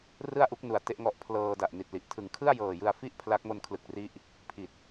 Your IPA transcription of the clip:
r ɯ˥˩ a̯ ʔ u˦˥ k̚ n u˨˩ a̯ t e˥˩ ʔ ŋ ɔ˦˥ ʔ pʰ l ɤː˧ d a˨˩ ʔ n i˨˩ t̚ l i˨˩ ʔ tʰ ɯ˩˦ ŋ kʰ ɯ˥˩ a̯ j ɤː˨˩ j ɯ˧ a̯ f i˥˩ ʔ pʰ l a˦˥ k̚ m o˧ n kʰ l ɯ˨˩ k̚ r i˦˥ ʔ | pʰ i˨˩ t̚

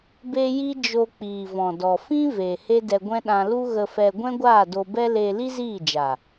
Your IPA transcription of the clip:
b e˦ j i˦ d͡ʒ o˧ k͡p iː˨ v ɔ̃˨ d ɔ˨ f ĩ˦ v eː˨ h e˦ d ɛ˧ ɡʷ ɛ̃˦ ɗ ã˧ l u˦ ɣ ə˧ f ɛ˧ ɡʷ ɛ̃˦ ɡʷ aː˦˨ d o˧ b ɛ˦ l eː˧ l i˦ z iː˦˨ d͡ʒ a˨

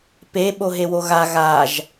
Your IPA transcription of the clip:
p e ɓ o ɦ e w o ɣ a ɣ a ʒ

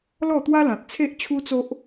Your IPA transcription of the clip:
l ɔ˥˧ t̪ w a˦ l ã˨ t̚ t͡sʰ e˦ ʔ t͡ɕʰ u˦ t͡s o˦ ʔ

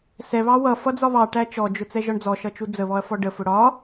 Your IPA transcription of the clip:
s ɛ β ɑ w ʌ f ʌ d͡z ɒ β ɑ ʈ æ t͡ʃ ɔ d͡ʒ ʊ t͡s ɛ ʒ ɒ ɳ d͡z ɔ ʃ ʌ t͡ʃ u d͡z ə β ɔ ɐ̯ f ɔ ɖ ə f ʊ ɽ ɒ

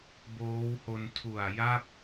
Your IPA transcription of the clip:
b oː˦˥ w h o˧ n tʰ u˨˩ a̯ j a˥˩ p̚

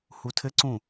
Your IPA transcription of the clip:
h u tʰ ɘ ǀ ũ

